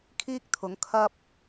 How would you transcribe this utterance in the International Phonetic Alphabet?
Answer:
kʰ iː˥ k̚ t̪ʰ ʊ˨˥ ŋ kʰ ɐ˥ p̚

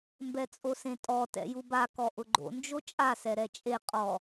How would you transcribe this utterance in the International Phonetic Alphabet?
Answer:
m b ɛ t͡sʼ o s ẽ tʼ ɔ t ɛ̰ j u b a k ɔ ʔ ʊ ɡ͡ǃ o̰ n d͡ʒ o t͡ʃʼ a s ɛ ɾ ɛ t͡ʃʼ e qʼ ɔ

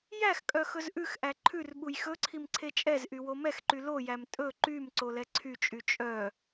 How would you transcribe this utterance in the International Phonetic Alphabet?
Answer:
j æ x kʼ œ x ɵ z ʔ ʉ x ʔ æ ǃʰ ʉ r ɓ u j x ɵ ǀʰ i m ǀʰ e t͡ʃʼ ɛ z ʔ y w o m ɛ x ǃ y l o j æ m tʼ ɵ ǃ y m ǀ o l ɛ ǀʰ y t͡ʃʼ y t͡ʃʼ œ

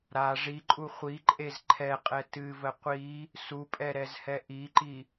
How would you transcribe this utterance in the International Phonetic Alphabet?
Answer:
ɾ a ʐ i ǃʼ u χʷ i ǃʼ e z ǃʰ ɛ qʼ ɛ t ɨ v ə qʷ i | s u pʼ ɛ ɾ ɛ z h ɛ ʔ i ǃ i

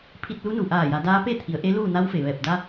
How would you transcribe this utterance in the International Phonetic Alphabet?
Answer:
pʰ i˧ t̚ l u˧˥ n u˩ ʔ aː˧˩ j a˩˧ d aː˧˥ p e˥˨ t̪ʰ i˩˧ ə̯ ʔ e˧˥ l uː˥˨ n a˧˥ w f e˩ ʋ ɛː˧˩ p̚ d a˧

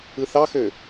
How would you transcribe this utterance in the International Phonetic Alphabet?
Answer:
ɯ θ ɑ x ø

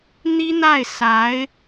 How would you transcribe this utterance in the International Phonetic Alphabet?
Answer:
n̪ i˥ n̪ a˥˩ ɪ̯ s a˧˥ ɪ̯

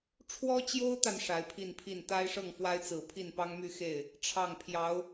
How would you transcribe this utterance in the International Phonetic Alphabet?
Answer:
ʈ͡ʂʰ w ɔ˥ t͡ɕ j o˥ ʊ̯ t̪ a˨ n ʂ a˧˥ ɪ̯ pʰ i˥˧ n pʰ i˥˩ n t̪ a˥ ɪ̯ ʂ ɤ˥˩ ŋ f w a˥ ɪ̯ t͡s ɹ̩˨˩ pʰ i˥˩ n p ɑ˥ ŋ m y˥˧ x e˥˩ ɪ̯ | ʈ͡ʂʰ ɑ˥˩ ŋ pʰ j ɑ˧˥ ʊ̯

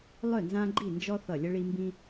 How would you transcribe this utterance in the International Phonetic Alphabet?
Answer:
lˠ œ˥˨ n z ã˦ ɡ͡ǃ i˥˨ n d͡ʒ ɔ˦ θ ʌ˧˩ lʲ ə˦ ɭ i˦ m b ĩ˦

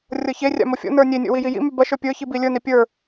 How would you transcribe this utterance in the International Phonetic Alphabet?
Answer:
rʲ ɤ ç e rʲ a̰ m o fʲ o̰ n ə˞ nʲ e nʲ o̰ w i j i j ḭ m y b ɐ ʃ ə˞ pʲ ə˞ ç i b i lʲ ə˞ n i pʲ ə˞

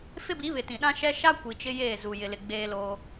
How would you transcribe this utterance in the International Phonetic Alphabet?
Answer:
f ɪ˦ b i˨˦ β ɪ˨ t ĩ˨ ɗ ã˦ ʃ ɛ˦ ʃ a˦ kʷ i˨ t͡ʃ ɪ˦ j eː˦˨ z u˨ j ɪ˨ l ɪ˨ ɡ͡b eː˦ l oː˦

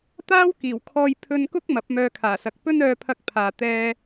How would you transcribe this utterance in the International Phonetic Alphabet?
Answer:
t̪ aː˥ w k iː˨˩ w kʰ ɔː˧ j pʰ ɵ˧ n k ʊ˥ k̚ m ɐ˨˥ p̚ m œː˧ kʰ aː˨˩ s ɐ˨˥ k̚ p ɵ˥ n œː˧ pʰ ɐ˧ k̚ pʰ aː˨ t̪ ɛː˧

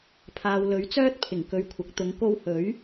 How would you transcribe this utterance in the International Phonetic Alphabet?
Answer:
pʰ aː˨ w l ɵ˨˥ ɥ t͡s œː˥ t̚ pʰ ɪ˨˩ ŋ k ɵ˨ ɥ kʷʰ ɐ˨˥ k̚ t̪ ʊ˨˧ ŋ k o˧ w h ɵ˨˥ ɥ

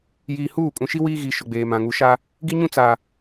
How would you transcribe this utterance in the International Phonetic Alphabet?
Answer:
j iː˨ h uː˦˨ kʼ ũ˨ ʃ i˦ w iː˦ ɣ i˨ ʃ ʊ˨ ɡ͡b eː˨ m ã˨ ŋ u˨ ʃ a˦ | ɡ i˦ ɲ ũ˦ t͡s a˨

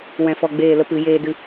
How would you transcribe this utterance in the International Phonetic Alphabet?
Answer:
w ɛ̃˧ f ɔ˧ ɡ͡b eː˦˨ l ə˦ p ɨ˨˦ j eː˦ d ɨ˦

